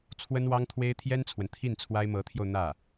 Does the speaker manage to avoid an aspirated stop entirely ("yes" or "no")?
no